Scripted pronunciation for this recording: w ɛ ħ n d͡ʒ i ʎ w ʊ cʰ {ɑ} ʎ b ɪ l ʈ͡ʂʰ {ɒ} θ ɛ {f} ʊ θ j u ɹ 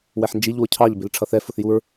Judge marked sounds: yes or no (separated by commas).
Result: yes, no, yes